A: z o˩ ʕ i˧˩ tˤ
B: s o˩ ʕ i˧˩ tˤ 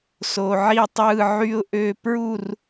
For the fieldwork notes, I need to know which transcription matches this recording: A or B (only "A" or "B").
B